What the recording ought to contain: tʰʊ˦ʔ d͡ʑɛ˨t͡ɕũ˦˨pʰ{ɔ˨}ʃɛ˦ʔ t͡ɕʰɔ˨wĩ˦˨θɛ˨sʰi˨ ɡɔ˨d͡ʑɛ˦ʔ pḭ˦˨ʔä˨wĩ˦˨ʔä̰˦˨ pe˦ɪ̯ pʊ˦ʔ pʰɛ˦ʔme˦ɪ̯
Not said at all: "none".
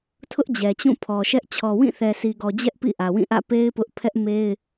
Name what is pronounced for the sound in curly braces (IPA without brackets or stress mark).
ɔ˨